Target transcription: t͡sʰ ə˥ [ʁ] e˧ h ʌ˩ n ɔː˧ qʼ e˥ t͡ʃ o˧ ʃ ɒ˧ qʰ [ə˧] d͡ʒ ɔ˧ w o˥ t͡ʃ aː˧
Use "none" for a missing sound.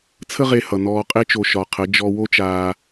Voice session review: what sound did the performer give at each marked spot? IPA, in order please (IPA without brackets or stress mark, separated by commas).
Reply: ʁ, ə˧˥